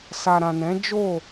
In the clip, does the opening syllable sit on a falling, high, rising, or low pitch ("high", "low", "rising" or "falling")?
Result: low